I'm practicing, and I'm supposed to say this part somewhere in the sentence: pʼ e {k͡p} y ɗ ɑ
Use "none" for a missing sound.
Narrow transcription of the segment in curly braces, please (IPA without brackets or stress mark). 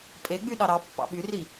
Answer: ɡ͡b